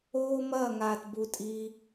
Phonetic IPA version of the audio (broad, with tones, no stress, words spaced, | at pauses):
oː˥mɐː˥˧ŋaː˧tbu˧ tʼiː˧